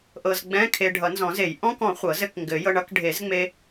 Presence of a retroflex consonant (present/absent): present